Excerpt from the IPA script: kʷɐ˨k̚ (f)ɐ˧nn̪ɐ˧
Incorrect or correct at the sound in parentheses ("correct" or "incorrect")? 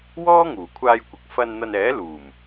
correct